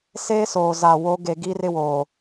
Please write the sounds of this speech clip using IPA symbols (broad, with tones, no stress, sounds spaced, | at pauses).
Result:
s eː˦ s oː˨ z a˨ w o˨˦ ɡ e˨ ɡ iː˦ r ɪ˦ w oː˨